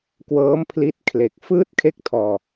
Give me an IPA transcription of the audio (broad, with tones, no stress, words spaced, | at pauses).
kwɤː˦˥mpʰli˦˥t̚ kʰle˨˩k̚ fɯː˥˩t̚kʰe˥˩k̚tʰɔː˧